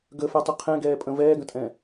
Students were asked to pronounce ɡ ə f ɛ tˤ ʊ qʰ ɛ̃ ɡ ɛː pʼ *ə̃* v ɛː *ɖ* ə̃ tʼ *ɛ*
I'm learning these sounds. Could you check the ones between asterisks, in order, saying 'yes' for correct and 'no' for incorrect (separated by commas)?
yes, no, no